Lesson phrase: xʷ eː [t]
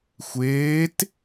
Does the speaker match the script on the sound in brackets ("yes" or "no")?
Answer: yes